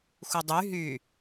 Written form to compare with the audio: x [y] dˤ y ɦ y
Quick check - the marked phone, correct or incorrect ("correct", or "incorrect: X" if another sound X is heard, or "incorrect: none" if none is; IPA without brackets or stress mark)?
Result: incorrect: u